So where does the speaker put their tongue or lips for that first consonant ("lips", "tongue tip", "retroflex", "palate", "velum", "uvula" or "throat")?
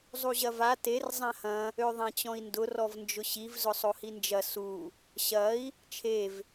tongue tip